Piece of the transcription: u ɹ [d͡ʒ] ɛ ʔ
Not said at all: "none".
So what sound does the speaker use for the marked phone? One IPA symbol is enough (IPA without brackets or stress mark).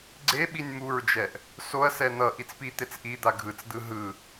d͡ʒ